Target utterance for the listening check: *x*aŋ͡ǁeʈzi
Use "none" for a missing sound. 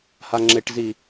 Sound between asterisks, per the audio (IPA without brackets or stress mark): h